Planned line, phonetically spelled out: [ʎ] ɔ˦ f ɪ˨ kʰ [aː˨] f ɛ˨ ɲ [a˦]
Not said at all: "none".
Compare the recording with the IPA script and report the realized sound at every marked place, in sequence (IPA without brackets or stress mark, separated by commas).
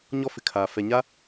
ɲ, aː˨, a˦